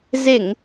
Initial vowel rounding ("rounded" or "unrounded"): unrounded